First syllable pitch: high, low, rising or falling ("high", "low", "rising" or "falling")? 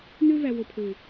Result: high